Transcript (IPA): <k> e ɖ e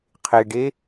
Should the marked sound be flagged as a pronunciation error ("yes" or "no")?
yes